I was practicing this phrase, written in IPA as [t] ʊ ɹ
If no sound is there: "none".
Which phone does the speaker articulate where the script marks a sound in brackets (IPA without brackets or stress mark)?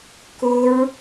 k